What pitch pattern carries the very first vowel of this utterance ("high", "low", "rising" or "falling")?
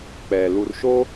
low